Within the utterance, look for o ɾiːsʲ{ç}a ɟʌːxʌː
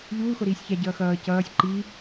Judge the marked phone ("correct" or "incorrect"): correct